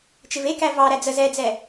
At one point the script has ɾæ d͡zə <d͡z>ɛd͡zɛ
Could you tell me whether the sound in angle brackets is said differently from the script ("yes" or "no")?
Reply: yes